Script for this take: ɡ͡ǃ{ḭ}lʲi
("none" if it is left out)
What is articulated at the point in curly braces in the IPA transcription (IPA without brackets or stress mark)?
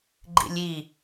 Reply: ḭ